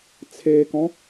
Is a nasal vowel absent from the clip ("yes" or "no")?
no